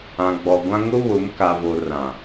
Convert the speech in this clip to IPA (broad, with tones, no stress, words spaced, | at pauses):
ã˨ɡ͡bɔ˨ɡʷã˦ ŋʊ˦βʊ˨˦m ka˨vo˨ rã˨